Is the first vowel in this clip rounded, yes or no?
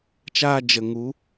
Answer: no